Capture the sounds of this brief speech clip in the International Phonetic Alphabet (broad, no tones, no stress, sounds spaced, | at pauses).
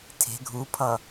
tʰ e̤ ɡʱ u pʰ ʌ